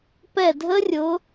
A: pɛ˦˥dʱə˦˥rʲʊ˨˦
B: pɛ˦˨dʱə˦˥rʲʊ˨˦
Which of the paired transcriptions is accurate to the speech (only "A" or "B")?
B